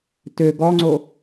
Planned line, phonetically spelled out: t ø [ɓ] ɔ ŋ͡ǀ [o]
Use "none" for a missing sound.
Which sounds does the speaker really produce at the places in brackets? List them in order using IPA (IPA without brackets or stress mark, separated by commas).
ɡ, o